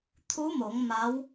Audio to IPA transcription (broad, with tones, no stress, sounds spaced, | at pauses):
t̪ʰ u˧˥ m o˩˧ ŋ m a˧˥ w